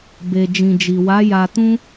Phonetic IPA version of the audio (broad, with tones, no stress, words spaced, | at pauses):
be˨d͡ʒĩ˨d͡ʒi˨wa˨˦ ja˧tũ˦